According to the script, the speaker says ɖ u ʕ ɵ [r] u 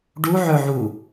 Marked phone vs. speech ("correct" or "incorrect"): incorrect